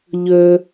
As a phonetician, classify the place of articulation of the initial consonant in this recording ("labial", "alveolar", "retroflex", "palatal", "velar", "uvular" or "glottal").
palatal